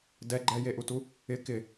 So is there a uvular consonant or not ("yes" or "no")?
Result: no